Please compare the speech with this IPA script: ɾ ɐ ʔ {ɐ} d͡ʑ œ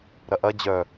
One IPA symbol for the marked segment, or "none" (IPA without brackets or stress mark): ɐ